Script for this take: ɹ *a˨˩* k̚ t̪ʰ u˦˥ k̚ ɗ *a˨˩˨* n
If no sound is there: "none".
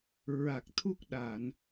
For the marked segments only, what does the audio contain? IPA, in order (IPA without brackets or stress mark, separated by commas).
a˨˩, a˨˩˨